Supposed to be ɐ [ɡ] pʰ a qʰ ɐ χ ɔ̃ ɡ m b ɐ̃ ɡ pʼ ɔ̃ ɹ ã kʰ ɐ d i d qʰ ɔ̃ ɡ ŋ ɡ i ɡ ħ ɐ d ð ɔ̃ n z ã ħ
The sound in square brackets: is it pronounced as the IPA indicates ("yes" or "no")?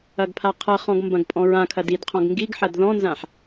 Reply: yes